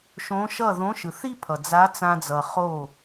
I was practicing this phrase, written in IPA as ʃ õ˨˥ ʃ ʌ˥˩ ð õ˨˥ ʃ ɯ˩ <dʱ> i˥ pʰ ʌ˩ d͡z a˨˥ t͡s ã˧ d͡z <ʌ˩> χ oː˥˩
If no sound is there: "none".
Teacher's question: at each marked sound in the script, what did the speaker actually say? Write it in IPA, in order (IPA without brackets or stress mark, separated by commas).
θ, ʌ˩